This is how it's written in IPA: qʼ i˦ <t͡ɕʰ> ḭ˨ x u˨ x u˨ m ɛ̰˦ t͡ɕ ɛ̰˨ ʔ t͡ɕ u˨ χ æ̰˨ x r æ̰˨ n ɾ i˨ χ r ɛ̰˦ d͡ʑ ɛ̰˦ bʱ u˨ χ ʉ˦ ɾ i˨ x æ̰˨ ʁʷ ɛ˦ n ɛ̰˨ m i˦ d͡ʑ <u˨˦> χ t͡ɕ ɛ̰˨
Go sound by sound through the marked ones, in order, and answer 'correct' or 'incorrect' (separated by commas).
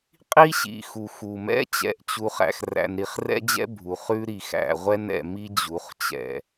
incorrect, correct